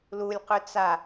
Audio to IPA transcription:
lulʲqʏ t͡sa

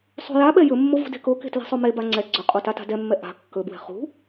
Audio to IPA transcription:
sˤṳjaɓɛ jɵmːo vṳde̤koke̤ tle̤sˤomeba ŋ͡ǀɛ ɡ͡ǀɵqʼo tata̤dɛmːɛ ʔa̤ kːɵbwɛ̤ χṳ

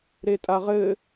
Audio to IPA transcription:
ɾetʼaʁɘ

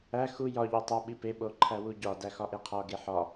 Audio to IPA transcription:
æ xu jɒ ʎotˤo ɓipe ɓoǃʰæwuɟɒ dæxɒʔeqʰɒ ɡeħɒ

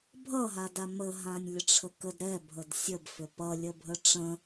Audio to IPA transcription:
bʱʌɦada mə ɦãnʲlʲəʈ͡ʂʰəkəd ɾɛbʱəd sʲəbfʏ pʌlʲəbʱə ʈ͡ʂə̃

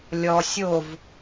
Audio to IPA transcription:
lʲɔ sʲov

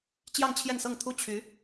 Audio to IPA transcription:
t͡ɕjɑ˥˧ŋt͡ɕʰjɛ˥˧nsɤ˥˩ŋt̪ʰu˥ t͡ɕʰy˧˥

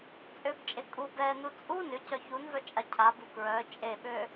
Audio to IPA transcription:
t͡sʼøbt͡ʃʼe kʼu bɛnu t͡sʼu nʏcœ çunvœ t͡ʃʼacʰabu kɹœ t͡ʃʼeɓø

